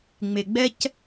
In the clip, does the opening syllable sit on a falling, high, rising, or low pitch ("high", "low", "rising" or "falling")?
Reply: low